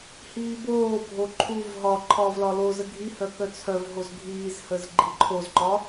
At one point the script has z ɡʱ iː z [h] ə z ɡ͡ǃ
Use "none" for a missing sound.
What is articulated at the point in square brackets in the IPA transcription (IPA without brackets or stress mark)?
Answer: h